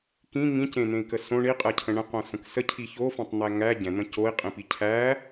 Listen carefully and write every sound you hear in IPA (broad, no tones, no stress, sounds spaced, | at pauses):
k ĩ ŋ ĩ c ẽ n̪ ẽ i̯ k ə s õ ɳ i qʼ ɛ cʰ ə̃ ɳ ə̃ q õ s ə̃ k s ə cʰ i ç o f ẽ tˤ n̪ æ ŋ æ ɟ ɛ̃ n̪ ə̃ c o i̯ qʼ ĩ p i cʰ æ